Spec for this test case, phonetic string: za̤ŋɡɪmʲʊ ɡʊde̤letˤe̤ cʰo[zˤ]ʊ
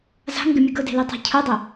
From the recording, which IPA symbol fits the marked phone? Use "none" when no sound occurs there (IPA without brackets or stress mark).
dˤ